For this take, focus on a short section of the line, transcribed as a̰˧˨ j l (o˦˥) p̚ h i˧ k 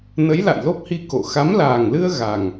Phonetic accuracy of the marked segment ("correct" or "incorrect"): correct